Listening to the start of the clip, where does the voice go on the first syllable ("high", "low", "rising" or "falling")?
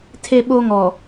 high